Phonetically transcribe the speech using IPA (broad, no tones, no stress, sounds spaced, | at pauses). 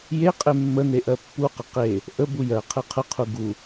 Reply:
j e qʼ e mː ə n e ʔ ɜ pː u q ə q e | ʔ ə b u j ɜ qʰ e qʰ ə qʰ u ɡ u